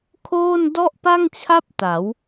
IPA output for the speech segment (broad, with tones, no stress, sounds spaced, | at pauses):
kʰ oː˥˩ n d ɔ˥˩ ʔ p a˥˩ ŋ t͡ɕʰ a˥˩ p̚ t a˩˦ w